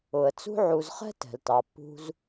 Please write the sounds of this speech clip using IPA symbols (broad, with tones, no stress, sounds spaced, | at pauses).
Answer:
ʊ˩ ə̯ t͡s ṳ˦ ʕ u˨ z χ ɛ̤˥ t ɛ̤˩ l t ɑ˩ pː ṳ˦ z